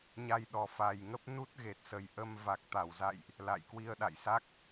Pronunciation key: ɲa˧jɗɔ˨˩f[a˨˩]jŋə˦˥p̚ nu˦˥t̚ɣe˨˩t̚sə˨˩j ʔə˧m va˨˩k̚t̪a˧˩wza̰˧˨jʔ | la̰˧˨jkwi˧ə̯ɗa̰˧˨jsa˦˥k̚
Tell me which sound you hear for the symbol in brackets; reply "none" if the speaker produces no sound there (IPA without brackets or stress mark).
a˨˩